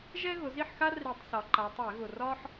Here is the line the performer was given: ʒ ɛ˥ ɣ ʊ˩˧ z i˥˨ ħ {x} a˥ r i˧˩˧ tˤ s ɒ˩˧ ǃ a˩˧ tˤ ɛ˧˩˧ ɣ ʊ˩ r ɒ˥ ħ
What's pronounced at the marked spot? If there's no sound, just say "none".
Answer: x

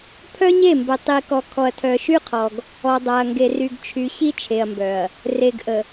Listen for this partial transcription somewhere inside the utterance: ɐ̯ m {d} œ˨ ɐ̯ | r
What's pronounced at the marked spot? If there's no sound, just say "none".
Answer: b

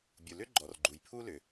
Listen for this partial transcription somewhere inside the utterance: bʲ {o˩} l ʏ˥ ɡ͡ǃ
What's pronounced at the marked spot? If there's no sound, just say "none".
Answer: u˩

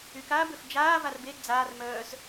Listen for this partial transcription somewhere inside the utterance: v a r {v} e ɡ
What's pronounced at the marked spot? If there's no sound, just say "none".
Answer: b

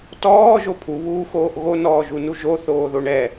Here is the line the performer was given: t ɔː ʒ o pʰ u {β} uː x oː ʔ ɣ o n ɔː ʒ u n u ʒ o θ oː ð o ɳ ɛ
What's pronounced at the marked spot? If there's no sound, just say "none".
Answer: β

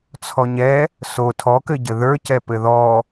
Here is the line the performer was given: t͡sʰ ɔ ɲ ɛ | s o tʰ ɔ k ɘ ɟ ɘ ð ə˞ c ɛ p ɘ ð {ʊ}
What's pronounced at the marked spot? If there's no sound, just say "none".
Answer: ɔ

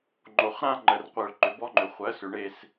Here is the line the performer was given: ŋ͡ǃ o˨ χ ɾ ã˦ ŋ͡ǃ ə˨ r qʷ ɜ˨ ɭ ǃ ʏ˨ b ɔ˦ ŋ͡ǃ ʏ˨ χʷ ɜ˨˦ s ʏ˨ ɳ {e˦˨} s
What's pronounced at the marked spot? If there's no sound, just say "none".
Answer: e˦˨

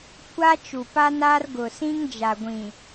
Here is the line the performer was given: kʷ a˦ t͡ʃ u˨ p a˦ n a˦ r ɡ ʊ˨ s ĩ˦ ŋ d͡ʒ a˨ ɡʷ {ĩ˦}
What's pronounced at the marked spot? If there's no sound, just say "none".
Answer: ĩ˨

